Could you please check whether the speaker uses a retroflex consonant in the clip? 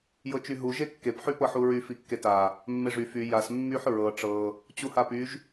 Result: yes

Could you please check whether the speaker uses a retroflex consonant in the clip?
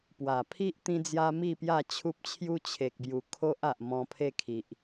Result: no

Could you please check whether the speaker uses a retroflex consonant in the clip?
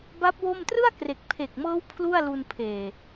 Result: no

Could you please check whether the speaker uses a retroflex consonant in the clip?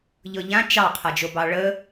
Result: yes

